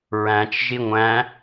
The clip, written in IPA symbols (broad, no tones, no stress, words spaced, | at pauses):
ɹæ̃t͡ʃ ʒiŋʷæ̃